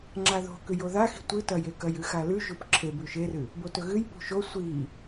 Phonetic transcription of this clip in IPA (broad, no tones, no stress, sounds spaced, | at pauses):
ŋ͡ǁ a ð o̤ k ʉ j o ð a x i̤ tʷ ɨ t ɐ j e k ɐ j ɨ x a l ʉ ʒ u p ǁʰ e b ʉ ʃ e r ɨ | b o t ɵ ɣ ɨ j p ṳ ʃ o sʷ i